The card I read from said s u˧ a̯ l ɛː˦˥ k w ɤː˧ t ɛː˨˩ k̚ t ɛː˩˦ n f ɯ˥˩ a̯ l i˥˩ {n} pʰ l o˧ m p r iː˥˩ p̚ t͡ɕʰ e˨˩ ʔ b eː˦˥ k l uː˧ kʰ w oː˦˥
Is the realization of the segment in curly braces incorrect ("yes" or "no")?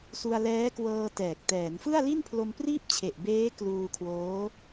no